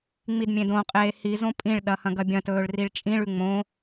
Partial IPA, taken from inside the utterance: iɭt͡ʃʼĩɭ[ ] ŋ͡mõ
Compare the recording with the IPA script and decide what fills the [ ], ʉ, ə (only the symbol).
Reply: ʉ